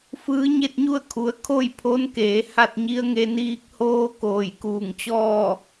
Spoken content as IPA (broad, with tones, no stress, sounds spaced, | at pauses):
f ɯː˧˥ ɲ e˥˨ t̚ ɲ u˥˨ ə̯ kʰ u˩˧ ə̯ kʰ o˥˨ j pʰ o˧˥ n k eː˩˧ h a˥˨ t̚ ɲ i˧˥ ə̯ ŋ e˧ n iː˧ k̚ h oː˧˥ k oː˧˩ j k uː˧˩ ŋ t͡ɕ ɔː˥˨